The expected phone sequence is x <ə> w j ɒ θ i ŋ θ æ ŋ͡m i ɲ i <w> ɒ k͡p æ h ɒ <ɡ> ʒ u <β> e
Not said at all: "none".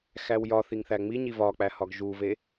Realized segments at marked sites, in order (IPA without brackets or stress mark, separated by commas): æ, v, ɡ, v